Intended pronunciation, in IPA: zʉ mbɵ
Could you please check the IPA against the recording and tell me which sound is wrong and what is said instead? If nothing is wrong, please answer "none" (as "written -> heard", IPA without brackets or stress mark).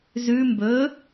none